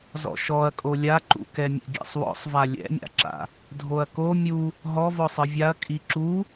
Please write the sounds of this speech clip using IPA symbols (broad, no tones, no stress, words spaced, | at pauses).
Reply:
zɔ̰ʃɔɐ̯kʼo lʲaǃṵkɛmʲɛ̰ ɡʲɛ̰sˤwɔ̰sˤva lʲɛ̰mʲa̰ǁa̰ | dʱoɐ̯ko mʲu | ɦɔvɔ sˤɯvʲaɐ̯ kʼiǁu